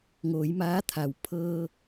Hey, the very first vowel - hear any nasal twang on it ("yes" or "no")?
no